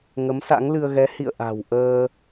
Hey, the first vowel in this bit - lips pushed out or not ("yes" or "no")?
no